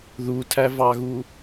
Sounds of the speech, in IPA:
ð u tʰ æ v ɑ ɣ u

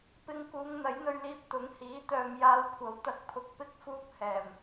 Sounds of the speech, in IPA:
p ɪ˧ ŋ k uː˨˧ ŋ n̪ ɐ˨˥ j n̪ ɵ˧ ɥ l iː˧ p̚ t̪ ʊ˨˥ ŋ h iː˨˥ t̪ œː˨ m j aː˨˧ w kʷʰ ɐ˨˥ w t̪ ɐ˨˥ k̚ pʰ ʊ˨ k̚ p ɪ˥ k̚ f uː˥ p̚ h ɛː˨˩ m

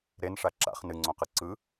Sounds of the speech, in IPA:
ɾ e n ʂ a ǁ a̰ χ n ɨ ŋ͡ǀ õ q ɯ ǀ ɯ

